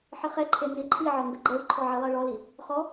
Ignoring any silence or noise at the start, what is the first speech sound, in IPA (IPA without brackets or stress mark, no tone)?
ħ